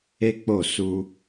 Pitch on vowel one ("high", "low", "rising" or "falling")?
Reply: high